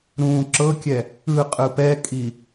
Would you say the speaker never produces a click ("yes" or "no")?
no